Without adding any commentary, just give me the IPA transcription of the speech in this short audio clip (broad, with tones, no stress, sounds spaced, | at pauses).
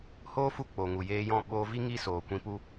h oː˦ f u˦˨ k͡p o˨ ŋ u˨ j eː˧ j ɔ̃˦˨ ɓ oː˧ v i˦ ŋ i˦ s oː˨ kʷ ĩ˧ p u˦